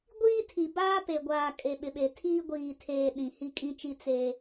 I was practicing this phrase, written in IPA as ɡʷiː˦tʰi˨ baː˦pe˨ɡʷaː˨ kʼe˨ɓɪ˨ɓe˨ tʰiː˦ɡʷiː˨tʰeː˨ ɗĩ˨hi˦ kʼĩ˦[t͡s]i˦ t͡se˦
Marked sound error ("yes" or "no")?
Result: yes